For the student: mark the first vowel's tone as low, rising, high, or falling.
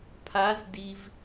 rising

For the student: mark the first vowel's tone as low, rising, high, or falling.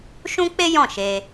high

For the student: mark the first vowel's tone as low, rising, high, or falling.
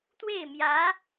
falling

